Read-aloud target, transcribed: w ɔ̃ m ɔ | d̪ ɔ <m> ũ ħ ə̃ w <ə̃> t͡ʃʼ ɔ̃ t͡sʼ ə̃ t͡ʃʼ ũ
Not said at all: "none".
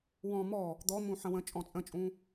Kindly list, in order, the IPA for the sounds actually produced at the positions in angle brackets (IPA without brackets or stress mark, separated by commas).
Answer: m, ə̃